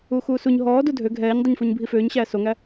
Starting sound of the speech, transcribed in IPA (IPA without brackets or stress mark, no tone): uː